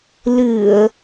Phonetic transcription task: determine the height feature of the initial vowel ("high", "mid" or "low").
high